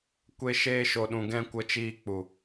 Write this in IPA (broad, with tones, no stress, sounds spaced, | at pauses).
kʷ e˧ ʃ eː˧ ʃ o˨ ɗ ũ˨ ɡ ɛ̃˧ kʷ ə˧ t͡ʃ iː˧ k͡p u˨